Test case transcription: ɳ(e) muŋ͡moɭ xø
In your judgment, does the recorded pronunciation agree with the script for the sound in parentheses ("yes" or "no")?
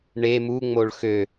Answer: yes